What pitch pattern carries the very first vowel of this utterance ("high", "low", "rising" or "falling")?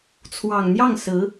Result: low